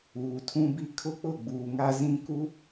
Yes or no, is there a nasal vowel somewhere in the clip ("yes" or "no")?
yes